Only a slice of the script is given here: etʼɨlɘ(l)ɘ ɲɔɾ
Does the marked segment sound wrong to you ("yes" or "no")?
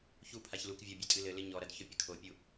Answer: no